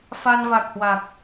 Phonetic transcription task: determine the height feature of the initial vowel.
low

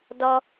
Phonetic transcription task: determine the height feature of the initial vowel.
mid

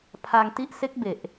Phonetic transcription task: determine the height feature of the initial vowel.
low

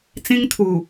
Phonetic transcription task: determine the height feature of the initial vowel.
high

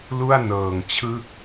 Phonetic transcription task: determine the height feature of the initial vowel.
high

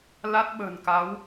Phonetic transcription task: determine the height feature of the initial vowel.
low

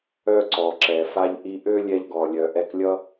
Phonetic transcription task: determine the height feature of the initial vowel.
mid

